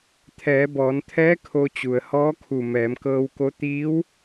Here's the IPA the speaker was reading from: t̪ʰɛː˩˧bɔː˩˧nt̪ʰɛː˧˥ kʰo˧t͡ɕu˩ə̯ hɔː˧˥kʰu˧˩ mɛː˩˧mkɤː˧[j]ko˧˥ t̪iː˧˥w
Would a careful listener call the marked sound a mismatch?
yes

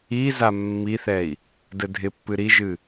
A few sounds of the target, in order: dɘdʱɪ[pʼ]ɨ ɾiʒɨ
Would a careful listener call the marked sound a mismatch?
yes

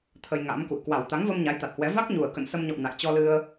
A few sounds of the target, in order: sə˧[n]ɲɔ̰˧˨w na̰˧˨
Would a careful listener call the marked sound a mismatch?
yes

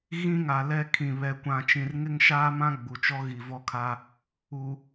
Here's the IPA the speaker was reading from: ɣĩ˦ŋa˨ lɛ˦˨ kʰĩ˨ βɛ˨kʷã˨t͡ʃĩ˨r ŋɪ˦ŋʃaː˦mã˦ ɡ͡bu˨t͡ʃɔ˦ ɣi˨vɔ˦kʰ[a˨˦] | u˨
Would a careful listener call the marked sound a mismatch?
yes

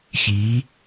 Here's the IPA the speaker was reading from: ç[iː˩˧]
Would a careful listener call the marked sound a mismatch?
no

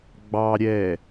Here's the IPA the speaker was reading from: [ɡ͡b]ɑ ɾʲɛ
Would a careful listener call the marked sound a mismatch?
no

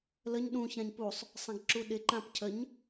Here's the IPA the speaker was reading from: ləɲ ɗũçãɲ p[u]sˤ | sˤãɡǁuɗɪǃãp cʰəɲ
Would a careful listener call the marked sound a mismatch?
no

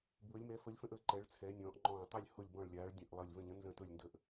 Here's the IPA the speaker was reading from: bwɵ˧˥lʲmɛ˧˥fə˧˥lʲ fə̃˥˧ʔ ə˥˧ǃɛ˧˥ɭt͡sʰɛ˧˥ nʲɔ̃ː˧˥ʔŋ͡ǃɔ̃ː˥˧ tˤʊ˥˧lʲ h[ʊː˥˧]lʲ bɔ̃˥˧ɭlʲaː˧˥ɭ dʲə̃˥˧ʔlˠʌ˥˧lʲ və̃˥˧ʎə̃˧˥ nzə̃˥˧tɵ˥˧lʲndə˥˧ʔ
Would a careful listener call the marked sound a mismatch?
yes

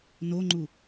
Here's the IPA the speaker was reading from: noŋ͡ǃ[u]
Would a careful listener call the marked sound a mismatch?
no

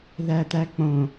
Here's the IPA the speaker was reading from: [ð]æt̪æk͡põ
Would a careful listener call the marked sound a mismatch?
no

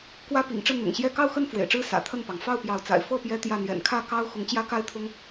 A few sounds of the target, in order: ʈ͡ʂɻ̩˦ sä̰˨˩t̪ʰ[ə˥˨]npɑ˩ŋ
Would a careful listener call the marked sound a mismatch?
no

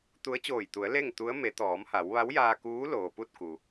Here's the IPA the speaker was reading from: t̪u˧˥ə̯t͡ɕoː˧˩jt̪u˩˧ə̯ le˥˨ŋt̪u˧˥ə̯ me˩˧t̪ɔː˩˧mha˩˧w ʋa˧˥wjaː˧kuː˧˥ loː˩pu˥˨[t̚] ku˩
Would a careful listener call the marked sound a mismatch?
no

